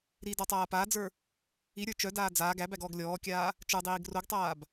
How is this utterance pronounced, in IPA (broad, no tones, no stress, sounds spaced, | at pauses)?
ɾ i d ɔ tˤ aː p aː d͡z ə˞ | i ɾʲ ə˞ t͡ʃ œ d aː d͡z aː ɡ æ b æ ɡ ɔː ɡ lʲ ɔː kʲ aː | t͡ʃ ə˞ dˤ iː ɡ r o ɡ tˤ aː b